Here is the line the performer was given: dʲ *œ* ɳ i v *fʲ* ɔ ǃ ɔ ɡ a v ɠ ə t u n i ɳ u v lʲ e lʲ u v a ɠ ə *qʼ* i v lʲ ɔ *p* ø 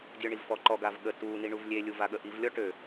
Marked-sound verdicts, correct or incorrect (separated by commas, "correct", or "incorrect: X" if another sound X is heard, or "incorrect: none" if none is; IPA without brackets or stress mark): correct, incorrect: f, incorrect: ʔ, incorrect: ʈ